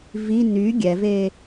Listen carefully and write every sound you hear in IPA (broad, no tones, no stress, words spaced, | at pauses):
vi ny ɡʲɛve